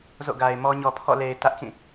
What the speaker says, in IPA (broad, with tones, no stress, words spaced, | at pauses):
zo̰˦˨ɡa˨ɪ̯mɔ˦ ɲɔ˨pʰɔ̰˦˨ le˨ɪ̯ tä˦ʔkĩ˦˨